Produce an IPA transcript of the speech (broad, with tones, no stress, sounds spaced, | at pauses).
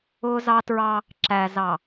ʊː˦ z ɑ˦ t ɹ ɑ˦ | ǁ æ˨ z ɑ˨